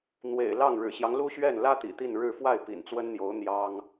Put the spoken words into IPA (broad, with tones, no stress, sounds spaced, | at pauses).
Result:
n̪ w ḛ˨˩ ɪ̯ l ɑ˥˩ ŋ ɻ ɻ̩˨˩ ɕ j ɑ˦ ŋ l u˥ ɕ ɥ ɛ˥˩ n l ä˥ t̪ ḭ˨˩ t̪ i˥˧ n ɻ ɻ̩˥˧ f w a˥˩ ɪ̯ p ḭ˨˩ n t͡s w ə˥ n n̪ j o˧˥ ʊ̯ n̪ j ɑ˥ ŋ